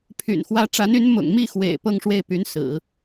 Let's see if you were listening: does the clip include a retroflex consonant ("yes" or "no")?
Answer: yes